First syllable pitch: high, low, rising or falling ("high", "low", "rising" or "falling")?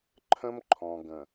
high